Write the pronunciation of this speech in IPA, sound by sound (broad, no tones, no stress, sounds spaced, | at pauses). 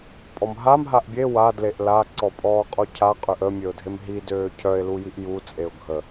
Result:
pʼ ɔ m ɦ a m ɦ a ʔ bʲ e w a d l e ʔ l a ǀ ɔ pʼ ɔː qʼ o cʰ a qʼ ø ʔ ə mʲ ø ʊ̯ dʱ e m ɦ i d øː cʰ œ ɪ̯ l u j i ʔ j u t͡sʼ e ʊ̯ ɡʱ ə